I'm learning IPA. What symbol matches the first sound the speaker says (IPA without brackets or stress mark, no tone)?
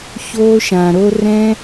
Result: ç